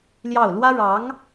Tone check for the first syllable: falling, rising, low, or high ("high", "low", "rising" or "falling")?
falling